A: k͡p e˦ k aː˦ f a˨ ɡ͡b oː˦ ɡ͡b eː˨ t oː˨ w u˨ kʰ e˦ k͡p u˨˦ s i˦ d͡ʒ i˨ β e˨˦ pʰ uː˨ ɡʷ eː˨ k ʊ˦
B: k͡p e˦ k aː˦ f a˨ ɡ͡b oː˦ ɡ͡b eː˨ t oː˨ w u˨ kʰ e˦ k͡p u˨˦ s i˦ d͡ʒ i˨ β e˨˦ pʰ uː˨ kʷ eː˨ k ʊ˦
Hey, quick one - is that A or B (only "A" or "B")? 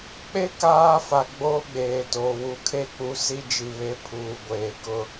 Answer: A